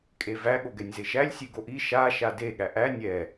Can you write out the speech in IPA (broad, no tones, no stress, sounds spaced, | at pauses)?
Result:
kʼ e v æ ɠ o ɡ ɛ nʲ z e ʃ æ lʲ sʲ e ɡ o ʔ i ʃ a ʃ a d e ɠ æ ʔ æ nʲ ɛ